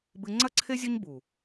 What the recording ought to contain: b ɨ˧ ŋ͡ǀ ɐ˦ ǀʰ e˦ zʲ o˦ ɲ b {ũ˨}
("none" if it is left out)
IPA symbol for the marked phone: u˨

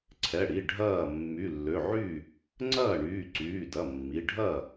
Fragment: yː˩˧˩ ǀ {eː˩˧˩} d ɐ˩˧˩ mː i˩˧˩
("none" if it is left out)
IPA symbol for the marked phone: yː˩˧˩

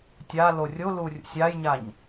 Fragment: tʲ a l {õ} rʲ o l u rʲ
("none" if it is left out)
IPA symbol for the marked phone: o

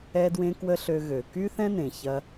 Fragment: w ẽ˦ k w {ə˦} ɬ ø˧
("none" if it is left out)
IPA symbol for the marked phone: ə˦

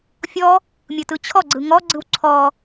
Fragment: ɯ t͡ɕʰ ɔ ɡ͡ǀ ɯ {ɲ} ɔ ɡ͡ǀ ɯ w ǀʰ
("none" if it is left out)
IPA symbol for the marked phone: ŋ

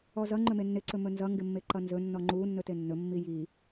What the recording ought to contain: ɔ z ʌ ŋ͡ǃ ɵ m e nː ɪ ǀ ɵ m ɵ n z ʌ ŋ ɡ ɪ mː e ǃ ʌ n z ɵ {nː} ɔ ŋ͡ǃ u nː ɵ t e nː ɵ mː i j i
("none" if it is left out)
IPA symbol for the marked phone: nː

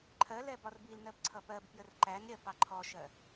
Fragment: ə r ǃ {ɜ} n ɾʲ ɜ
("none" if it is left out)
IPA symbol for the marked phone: æ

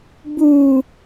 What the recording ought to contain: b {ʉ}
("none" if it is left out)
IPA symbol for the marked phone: u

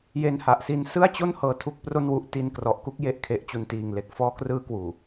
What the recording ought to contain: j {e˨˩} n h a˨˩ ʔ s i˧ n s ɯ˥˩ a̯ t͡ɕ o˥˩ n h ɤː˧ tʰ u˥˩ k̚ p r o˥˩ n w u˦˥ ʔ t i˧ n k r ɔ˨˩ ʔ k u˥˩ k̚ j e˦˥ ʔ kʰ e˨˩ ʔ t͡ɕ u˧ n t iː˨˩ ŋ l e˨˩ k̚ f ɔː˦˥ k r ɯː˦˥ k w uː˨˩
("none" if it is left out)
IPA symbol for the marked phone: e˧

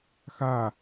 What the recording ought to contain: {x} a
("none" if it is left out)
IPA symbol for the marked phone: x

